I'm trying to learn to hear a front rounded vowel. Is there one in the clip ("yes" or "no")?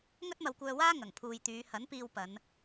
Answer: yes